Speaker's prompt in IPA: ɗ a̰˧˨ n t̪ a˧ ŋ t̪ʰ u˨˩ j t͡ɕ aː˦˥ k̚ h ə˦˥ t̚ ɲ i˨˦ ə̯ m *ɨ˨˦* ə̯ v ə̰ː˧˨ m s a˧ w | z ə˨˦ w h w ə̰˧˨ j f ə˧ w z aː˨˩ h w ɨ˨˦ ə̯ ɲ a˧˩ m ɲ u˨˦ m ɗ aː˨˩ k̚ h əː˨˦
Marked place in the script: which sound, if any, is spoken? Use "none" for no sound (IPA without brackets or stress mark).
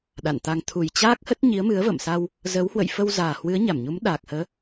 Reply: ɨ˨˦